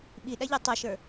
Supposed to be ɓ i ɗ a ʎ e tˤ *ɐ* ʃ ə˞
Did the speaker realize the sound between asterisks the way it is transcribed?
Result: yes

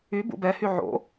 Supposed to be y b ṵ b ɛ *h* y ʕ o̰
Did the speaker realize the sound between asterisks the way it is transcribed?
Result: yes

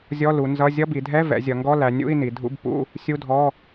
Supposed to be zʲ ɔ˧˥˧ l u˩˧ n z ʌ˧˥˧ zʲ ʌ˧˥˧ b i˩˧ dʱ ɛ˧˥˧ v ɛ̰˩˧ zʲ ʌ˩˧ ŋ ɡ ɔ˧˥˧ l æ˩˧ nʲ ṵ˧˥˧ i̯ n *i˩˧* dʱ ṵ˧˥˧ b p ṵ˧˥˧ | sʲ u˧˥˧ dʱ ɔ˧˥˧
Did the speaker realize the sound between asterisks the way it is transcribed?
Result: yes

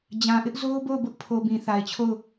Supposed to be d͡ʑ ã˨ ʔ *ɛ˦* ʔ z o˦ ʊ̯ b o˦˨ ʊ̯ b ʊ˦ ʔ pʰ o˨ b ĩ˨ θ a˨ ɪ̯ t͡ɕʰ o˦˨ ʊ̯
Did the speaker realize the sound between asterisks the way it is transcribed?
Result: no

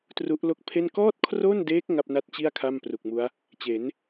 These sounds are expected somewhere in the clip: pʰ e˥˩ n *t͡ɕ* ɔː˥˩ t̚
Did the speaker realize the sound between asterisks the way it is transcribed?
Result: no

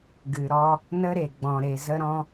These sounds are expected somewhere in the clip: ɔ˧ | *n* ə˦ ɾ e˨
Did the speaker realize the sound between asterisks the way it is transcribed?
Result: yes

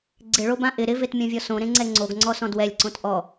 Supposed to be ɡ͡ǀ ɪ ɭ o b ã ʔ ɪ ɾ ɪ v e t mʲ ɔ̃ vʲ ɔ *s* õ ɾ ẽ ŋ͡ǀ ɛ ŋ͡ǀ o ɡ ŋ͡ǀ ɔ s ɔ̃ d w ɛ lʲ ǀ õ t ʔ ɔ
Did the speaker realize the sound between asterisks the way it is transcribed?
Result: yes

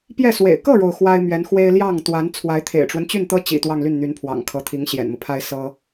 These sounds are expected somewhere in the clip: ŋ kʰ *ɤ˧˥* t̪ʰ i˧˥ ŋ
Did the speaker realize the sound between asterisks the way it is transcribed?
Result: yes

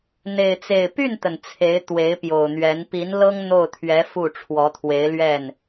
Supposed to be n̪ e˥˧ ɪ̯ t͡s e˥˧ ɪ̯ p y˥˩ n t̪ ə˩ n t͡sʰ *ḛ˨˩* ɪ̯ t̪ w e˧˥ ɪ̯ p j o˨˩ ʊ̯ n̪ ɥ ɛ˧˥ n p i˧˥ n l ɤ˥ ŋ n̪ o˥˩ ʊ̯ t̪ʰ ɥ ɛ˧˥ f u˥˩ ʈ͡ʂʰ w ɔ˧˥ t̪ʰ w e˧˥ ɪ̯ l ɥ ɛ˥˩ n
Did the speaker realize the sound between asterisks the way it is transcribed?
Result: no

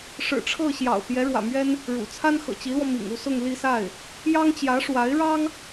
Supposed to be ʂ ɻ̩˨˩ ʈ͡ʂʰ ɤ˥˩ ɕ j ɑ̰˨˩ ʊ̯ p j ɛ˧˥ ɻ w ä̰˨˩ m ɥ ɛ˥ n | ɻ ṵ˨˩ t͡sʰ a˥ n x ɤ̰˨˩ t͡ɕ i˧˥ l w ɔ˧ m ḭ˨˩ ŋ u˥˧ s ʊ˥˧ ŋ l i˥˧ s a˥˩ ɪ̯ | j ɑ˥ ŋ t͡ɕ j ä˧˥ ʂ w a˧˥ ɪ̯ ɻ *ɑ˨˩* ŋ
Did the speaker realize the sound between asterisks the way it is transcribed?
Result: no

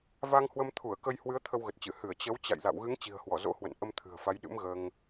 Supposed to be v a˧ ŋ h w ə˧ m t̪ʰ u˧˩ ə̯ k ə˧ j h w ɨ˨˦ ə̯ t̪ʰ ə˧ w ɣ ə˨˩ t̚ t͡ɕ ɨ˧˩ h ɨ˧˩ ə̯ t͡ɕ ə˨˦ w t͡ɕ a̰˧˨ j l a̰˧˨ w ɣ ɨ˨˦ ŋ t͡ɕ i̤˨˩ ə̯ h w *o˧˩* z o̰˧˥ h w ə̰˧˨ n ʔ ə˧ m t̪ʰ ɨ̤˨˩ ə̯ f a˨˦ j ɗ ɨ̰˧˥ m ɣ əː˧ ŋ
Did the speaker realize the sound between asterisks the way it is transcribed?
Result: no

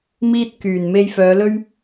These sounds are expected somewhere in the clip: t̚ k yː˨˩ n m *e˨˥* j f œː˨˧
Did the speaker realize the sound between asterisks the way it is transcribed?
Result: no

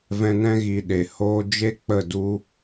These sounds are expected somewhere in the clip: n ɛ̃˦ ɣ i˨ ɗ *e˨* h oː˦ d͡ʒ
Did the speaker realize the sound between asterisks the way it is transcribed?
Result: yes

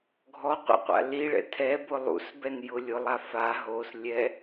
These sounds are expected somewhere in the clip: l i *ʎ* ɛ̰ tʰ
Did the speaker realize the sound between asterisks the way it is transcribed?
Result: no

